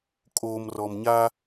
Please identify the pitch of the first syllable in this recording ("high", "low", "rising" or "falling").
low